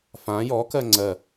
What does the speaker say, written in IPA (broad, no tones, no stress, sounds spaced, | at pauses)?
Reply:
f ã j ɔ k ɜ ŋ͡ǀ ɜ